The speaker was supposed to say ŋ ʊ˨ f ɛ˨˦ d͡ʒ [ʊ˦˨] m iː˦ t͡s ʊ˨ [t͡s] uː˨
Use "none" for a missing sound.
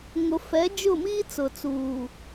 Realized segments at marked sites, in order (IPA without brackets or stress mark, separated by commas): ʊ˦˨, t͡s